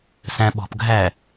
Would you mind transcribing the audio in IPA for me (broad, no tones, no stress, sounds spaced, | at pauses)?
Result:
s æ̃ ɓ ɔ̤ p ɡʱ æ